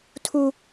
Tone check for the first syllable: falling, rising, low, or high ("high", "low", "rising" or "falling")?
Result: low